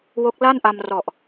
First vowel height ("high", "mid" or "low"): mid